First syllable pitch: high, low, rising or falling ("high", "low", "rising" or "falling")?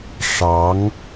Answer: rising